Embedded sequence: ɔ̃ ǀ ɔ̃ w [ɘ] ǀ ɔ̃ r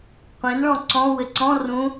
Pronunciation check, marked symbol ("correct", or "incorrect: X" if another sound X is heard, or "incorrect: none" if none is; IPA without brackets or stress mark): correct